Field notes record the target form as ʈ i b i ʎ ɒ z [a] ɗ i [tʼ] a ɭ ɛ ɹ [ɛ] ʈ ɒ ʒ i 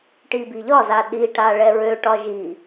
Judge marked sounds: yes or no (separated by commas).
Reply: yes, no, no